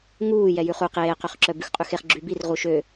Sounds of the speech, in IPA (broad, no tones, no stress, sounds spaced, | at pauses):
ŋ uː j ɛ j ʉ χ u q eː q ø χ ǁ œ b ʉ x qʼ ʉ x e χ ɡ͡ǁ y b i r ʁ u ʃ ø